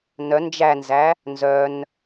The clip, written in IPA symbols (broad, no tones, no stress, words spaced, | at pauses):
nœ nd͡ʒænzæ | nzœn